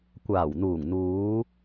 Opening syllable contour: low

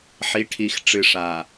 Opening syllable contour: rising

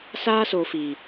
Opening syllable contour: high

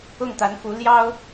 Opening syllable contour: falling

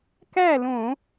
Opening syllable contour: falling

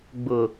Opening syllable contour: low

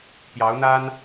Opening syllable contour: rising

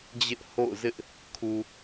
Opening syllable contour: high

